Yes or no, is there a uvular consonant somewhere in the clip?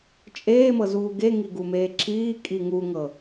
no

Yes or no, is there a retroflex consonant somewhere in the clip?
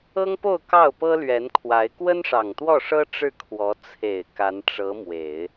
yes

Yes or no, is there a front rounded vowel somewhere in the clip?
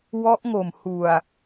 no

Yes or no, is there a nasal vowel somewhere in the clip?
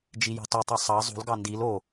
no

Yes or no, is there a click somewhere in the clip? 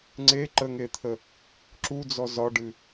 yes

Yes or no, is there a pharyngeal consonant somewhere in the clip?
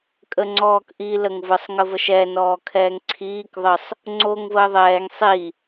no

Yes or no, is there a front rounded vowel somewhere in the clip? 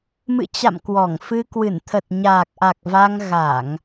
no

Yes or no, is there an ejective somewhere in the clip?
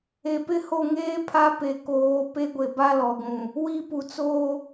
no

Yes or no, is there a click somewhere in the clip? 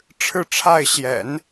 no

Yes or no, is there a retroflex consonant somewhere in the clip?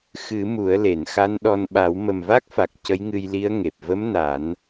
no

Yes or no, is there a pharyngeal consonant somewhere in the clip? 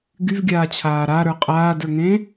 no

